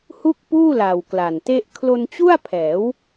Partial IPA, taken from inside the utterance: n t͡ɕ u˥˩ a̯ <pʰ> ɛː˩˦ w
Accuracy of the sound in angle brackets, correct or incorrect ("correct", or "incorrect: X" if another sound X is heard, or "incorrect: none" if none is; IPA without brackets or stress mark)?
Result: correct